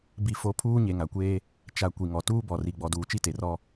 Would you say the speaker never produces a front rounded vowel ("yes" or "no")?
yes